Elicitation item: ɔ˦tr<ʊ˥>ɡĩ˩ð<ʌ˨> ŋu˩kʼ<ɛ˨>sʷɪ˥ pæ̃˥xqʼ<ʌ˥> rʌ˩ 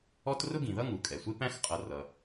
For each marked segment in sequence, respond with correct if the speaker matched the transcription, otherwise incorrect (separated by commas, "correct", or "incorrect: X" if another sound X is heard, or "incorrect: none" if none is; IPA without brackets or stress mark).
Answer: correct, incorrect: ʌ˥, incorrect: ɛ˩, incorrect: ʌ˨